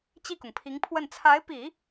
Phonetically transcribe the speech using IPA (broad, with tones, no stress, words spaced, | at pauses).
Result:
t͡ɕi˥˩kʊ˩ŋpʰi˧˥ŋpʰwə˥˩n t͡sʰa˧˥ɪ̯pi˨˩˦